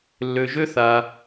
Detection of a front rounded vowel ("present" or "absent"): present